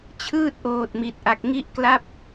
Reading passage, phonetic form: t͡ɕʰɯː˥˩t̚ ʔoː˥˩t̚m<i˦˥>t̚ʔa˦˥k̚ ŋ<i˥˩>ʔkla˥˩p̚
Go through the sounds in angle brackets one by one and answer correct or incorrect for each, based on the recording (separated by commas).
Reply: correct, correct